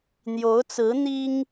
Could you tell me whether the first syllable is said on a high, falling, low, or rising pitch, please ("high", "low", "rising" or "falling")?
rising